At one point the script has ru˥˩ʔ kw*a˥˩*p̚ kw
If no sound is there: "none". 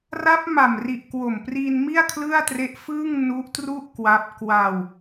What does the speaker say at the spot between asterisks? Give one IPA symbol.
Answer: a˦˥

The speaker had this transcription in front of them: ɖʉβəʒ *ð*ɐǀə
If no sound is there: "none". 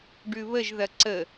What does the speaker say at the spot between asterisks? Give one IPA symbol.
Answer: ð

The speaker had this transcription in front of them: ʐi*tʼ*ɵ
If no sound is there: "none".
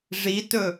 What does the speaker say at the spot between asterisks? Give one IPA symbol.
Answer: t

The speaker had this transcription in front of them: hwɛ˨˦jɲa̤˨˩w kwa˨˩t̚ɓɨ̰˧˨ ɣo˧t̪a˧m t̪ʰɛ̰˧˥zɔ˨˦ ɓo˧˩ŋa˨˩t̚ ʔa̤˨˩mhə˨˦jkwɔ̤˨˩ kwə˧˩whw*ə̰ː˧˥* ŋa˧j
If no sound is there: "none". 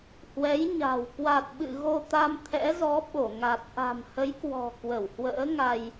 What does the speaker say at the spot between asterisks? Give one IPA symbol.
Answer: ə̰ː˧˥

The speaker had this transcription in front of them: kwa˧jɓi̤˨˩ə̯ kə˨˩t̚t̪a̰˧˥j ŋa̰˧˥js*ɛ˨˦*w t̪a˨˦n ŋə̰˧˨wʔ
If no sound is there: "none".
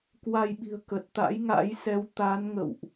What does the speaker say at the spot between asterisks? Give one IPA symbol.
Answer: ɛ˨˦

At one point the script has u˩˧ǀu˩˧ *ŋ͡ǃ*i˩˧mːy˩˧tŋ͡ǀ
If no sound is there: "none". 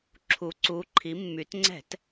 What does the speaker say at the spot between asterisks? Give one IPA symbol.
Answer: ǃʰ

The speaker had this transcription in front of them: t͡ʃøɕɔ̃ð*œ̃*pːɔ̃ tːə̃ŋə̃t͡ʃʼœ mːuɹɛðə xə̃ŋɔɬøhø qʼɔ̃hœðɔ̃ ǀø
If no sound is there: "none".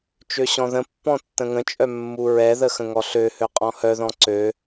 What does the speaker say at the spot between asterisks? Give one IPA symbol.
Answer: ə̃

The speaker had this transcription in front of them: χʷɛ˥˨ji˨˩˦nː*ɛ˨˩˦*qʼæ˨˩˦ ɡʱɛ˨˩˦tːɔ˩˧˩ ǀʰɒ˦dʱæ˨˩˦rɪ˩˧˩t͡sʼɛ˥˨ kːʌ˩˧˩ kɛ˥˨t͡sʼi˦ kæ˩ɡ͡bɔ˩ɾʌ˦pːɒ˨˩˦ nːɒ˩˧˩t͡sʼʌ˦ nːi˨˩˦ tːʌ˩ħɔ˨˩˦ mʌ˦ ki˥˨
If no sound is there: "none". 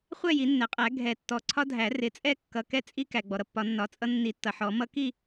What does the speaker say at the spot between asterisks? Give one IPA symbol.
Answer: ɛ˩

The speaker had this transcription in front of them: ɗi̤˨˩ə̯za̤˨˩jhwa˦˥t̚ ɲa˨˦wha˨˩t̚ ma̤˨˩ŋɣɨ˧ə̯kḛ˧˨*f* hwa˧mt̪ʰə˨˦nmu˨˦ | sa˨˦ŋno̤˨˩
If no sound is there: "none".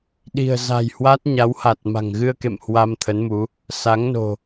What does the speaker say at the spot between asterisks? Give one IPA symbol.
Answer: m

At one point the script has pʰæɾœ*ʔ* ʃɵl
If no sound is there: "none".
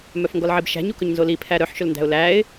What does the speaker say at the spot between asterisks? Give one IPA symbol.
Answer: ħ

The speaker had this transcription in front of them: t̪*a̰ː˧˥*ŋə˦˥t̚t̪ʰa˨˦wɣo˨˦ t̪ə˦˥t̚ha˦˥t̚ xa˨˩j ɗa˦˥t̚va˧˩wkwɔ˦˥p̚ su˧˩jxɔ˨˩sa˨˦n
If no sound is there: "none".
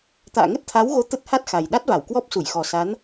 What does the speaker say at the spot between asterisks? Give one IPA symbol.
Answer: a̰ː˧˨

